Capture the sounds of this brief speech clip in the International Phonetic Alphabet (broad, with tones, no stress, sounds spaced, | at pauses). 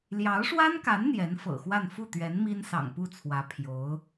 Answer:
l j ɑ˧˥ ʊ̯ ʂ w a˥ n k a˧˥ n n̪ j ɛ˧˥ n f ɤ̰˨˩ x w a˥˧ n f u˥˩ t̪ ɥ ɛ˧˥ n m i˥ n s ɑ̰˨˩ ŋ p u˥˩ t͡sʰ w ä˧˥ pʰ j o˧˥ ʊ̯